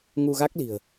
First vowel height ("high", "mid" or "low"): high